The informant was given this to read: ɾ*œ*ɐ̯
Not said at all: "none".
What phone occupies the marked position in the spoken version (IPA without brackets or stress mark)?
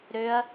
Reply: ø